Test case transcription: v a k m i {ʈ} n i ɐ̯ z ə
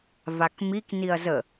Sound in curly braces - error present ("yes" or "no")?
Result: yes